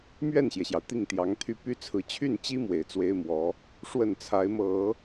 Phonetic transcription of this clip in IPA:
m ɥ ɛ˥˩ n ɕ j ɛ˩ ɕ j ɑ˩ ʊ̯ t̪ i˥˩ ŋ t̪ j ɑ˧˥ ŋ t̪ʰ y˥ p y˥ t͡sʰ ɹ̩˧˥ t͡ɕʰ y˥˩ n t͡ɕ i˥ m w e˨˩ ɪ̯ t͡s w e˥ ɪ̯ m w ɔ˧˥ | ʂ w ə˥˩ n t͡sʰ a˧˥ ɪ̯ m ɤ˨˩˦

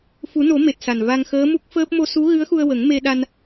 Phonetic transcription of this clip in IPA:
f u˨˩˦ n o˨˩˦ m e˨˩ t̚ s a˨˩ n v a˧ ŋ x əː˧˥ m u˦˥ k̚ f əː˦˥ p̚ m o˧ s u˧˥ ɣ ɨ˧˥ ə̯ x u˧ ə̯ w ə˨˩˦ ŋ m e˧ ɗ a˧ n

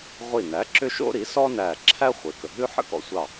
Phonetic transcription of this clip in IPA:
ʁʷ i˧˩ n æ˩˥ ǁ ʏ˥ ʃ o̰˥ ɾ i˩˥ s ɔ˥ n æ˧˩ ǁʰ æ˥ χʷ e˩˥ k ə˩ ɦ ʉ˥ ħ ə̰˥ k ɔ̰˧ sʷ ɑ˧˩

